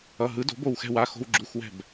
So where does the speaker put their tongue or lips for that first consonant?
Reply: throat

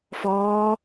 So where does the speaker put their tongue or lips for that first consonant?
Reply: lips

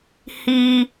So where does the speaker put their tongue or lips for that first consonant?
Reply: throat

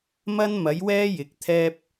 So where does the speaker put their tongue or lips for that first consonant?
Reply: lips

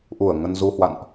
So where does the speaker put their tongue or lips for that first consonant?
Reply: throat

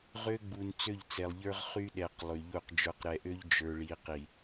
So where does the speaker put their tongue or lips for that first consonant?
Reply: uvula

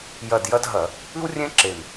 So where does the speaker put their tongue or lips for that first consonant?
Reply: palate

